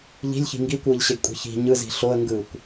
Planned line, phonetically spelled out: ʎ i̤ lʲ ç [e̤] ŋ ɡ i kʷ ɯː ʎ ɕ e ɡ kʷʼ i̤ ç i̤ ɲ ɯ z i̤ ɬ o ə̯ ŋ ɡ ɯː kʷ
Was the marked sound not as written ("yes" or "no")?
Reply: yes